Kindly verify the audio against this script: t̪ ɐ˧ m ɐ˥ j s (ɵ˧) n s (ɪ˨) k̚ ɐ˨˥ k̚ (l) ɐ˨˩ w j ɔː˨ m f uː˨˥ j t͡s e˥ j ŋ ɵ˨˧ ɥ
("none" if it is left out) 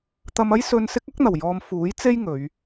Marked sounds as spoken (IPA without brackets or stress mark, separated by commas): ɵ˧, ɪ˥, n̪